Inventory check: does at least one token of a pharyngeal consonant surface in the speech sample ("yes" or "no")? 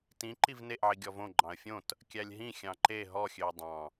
yes